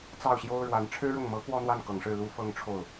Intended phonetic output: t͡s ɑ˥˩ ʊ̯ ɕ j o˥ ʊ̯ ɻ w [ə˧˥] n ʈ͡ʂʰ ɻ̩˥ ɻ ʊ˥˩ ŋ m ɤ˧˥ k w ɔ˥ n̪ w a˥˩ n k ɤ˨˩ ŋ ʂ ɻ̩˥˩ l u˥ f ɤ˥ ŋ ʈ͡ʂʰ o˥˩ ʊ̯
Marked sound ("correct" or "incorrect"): incorrect